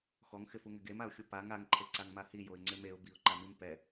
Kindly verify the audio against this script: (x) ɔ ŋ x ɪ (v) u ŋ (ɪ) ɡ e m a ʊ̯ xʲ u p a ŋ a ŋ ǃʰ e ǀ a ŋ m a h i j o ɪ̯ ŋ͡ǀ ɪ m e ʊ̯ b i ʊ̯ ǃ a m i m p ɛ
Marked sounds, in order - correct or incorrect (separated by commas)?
correct, incorrect, correct